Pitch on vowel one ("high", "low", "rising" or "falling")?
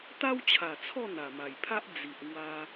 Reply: high